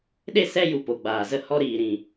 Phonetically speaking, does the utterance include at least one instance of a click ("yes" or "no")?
no